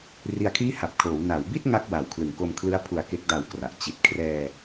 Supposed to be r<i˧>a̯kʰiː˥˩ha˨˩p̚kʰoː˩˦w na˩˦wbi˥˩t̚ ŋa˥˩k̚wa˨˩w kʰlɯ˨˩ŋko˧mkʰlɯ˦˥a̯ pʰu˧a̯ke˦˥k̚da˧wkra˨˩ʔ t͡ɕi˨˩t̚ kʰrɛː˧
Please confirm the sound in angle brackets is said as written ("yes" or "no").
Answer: yes